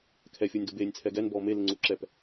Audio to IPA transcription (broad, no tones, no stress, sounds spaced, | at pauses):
kʰ ɛ fʲ ʊː nʲ d o b eː nʲ t͡sʰ ɛ ɡ ɛ n b ɔː m e l ɪ ŋ͡ǀ u ǁ ɛ p